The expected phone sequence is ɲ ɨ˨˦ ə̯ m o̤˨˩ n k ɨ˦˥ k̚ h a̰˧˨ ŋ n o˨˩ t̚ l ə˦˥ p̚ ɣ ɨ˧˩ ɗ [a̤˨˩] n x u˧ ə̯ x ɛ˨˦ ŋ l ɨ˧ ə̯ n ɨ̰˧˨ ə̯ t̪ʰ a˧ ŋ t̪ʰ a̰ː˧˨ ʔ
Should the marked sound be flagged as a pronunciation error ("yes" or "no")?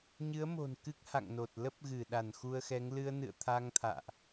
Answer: yes